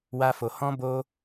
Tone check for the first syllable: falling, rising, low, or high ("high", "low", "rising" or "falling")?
high